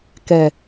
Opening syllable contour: low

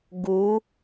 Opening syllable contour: rising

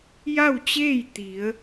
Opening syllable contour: falling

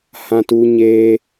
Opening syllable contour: high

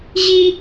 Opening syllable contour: high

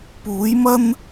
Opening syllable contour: rising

